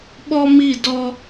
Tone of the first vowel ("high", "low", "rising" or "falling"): high